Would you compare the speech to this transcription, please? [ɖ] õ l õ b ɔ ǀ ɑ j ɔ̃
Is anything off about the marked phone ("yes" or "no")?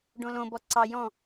no